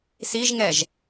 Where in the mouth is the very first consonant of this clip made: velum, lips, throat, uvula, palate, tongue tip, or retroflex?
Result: tongue tip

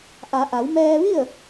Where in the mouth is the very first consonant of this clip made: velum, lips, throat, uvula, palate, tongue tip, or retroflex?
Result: throat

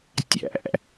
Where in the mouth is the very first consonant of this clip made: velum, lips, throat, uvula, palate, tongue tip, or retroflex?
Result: tongue tip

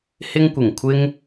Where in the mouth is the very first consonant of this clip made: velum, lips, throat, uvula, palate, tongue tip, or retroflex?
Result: throat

